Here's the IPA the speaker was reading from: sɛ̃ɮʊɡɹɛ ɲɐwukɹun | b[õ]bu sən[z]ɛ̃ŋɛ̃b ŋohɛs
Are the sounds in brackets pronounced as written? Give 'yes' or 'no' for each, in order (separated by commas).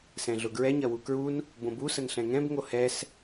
yes, no